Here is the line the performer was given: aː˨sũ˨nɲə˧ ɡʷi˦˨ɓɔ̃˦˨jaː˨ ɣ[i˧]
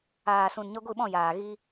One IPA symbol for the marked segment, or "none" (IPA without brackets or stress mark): i˧